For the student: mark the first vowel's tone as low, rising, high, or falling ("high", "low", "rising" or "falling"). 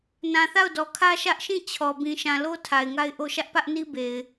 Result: low